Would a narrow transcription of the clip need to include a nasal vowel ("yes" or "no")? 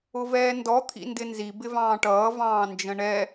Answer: yes